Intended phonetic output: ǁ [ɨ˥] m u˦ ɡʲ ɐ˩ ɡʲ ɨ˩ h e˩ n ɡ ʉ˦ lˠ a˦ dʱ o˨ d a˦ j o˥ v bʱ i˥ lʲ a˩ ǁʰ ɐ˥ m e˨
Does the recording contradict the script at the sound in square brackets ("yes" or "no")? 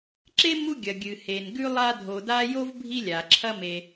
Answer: yes